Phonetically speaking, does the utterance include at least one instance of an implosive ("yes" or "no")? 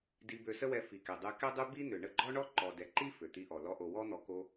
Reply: no